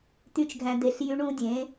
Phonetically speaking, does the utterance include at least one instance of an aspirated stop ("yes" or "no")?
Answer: no